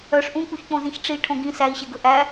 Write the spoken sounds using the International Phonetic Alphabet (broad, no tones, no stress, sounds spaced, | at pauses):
œ ʂ ʔ ũ k͡p u ç k͡p õ z ĩ ç ʈ͡ʂ i ʈʰ õ ɡ ĩ s æ i̯ ɕ e ɡ ɵ ʔ æ